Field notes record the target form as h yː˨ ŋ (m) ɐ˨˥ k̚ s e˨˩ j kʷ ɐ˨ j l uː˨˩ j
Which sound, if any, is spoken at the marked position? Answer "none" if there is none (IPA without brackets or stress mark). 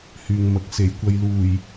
m